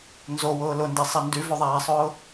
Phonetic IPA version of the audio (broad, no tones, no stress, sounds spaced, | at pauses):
n z o w ʊː l ʊ n d e sˤ ɛ n d y v o ðˤ æː sˤ ʊː